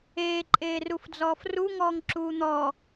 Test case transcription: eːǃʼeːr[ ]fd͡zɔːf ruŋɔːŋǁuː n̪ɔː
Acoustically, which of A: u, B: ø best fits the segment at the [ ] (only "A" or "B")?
A